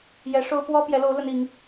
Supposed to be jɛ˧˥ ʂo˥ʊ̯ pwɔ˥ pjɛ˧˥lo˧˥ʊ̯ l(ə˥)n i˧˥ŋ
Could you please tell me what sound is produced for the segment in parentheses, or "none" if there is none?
ə˥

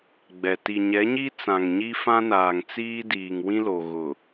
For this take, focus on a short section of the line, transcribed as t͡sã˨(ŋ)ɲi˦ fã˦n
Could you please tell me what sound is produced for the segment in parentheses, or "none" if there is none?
ŋ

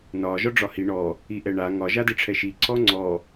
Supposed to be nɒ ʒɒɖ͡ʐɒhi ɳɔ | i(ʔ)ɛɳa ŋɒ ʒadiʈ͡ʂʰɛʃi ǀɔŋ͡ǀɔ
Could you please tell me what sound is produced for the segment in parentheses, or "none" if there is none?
ʔ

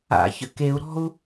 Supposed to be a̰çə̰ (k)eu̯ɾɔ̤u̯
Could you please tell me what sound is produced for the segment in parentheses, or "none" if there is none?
k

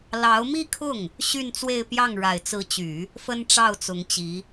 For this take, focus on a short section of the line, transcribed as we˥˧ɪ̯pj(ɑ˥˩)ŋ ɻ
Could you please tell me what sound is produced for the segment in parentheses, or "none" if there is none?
ɑ˥˩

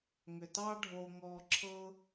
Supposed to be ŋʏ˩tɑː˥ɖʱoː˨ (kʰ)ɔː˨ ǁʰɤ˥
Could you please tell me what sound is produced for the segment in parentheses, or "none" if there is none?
ŋ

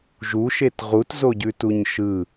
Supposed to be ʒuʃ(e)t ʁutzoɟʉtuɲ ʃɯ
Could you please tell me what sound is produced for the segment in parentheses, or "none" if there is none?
e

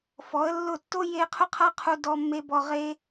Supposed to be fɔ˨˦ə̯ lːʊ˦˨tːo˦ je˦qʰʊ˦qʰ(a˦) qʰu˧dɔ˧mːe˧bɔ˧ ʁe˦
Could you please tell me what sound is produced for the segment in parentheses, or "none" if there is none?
a˦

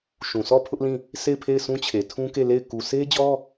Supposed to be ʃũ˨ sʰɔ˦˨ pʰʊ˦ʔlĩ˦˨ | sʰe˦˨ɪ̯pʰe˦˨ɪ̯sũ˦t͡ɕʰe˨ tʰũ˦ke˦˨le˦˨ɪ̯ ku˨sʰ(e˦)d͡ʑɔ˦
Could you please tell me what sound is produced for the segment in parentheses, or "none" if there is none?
e˦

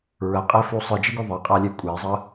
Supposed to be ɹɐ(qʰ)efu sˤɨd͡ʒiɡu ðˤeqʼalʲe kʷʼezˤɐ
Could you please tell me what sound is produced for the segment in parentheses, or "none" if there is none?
qʼ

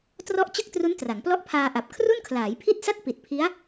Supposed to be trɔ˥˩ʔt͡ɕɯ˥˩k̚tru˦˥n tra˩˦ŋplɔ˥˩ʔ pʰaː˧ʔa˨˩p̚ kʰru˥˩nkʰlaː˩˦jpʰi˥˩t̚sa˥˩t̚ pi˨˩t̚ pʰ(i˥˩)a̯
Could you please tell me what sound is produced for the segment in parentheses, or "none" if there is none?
i˦˥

